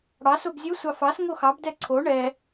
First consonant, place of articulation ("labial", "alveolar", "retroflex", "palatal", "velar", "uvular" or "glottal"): retroflex